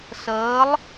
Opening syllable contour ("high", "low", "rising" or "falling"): rising